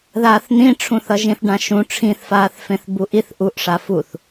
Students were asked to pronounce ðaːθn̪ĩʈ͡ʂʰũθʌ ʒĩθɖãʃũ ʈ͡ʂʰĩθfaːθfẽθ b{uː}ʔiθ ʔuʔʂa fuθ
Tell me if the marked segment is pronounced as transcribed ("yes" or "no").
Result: no